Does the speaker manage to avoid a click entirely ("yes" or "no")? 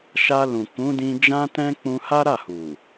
yes